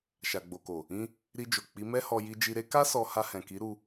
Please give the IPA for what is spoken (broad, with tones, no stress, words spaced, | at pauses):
ʃa˨ɡ͡bo˨ko˨ | ĩ˧ | ɾi˧d͡ʒo˨ k͡pi˨˦mɛ˦hɔ˧ ji˧d͡ʒi˧ɾe˦ ka˦sɔ˧ ha˧hɛ̃˨ki˨˦ɾu˧